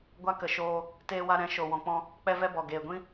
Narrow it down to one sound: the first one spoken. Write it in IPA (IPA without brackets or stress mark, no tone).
ɡʷ